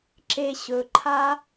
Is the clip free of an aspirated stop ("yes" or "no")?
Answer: no